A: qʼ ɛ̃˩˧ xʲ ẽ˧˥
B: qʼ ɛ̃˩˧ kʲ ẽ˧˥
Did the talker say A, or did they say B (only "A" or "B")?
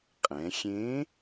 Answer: A